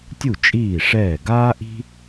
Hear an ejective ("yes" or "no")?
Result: yes